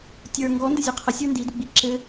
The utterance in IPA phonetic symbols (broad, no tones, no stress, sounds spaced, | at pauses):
tʲ ə˞ ŋ ɡ ɔ n d ɘ zʲ ɔ qʰ ə sʲ ə˞ n d i d u ɡ͡b i ǁ ɘ